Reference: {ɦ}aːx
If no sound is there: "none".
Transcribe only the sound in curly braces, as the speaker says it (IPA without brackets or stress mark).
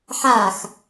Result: ħ